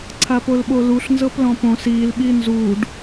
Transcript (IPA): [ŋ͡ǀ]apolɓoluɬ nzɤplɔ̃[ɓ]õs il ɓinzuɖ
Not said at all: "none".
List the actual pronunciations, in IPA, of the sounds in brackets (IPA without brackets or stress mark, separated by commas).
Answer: ǀʰ, p